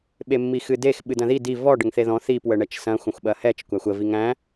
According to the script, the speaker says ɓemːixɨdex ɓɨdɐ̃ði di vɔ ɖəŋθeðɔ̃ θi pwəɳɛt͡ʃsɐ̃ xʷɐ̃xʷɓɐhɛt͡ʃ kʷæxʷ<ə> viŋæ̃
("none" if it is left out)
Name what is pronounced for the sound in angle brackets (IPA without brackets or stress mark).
ə